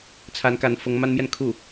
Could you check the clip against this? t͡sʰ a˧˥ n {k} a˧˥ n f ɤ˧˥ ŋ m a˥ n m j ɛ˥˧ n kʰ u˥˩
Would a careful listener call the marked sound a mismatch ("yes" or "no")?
no